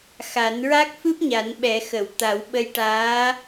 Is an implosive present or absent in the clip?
present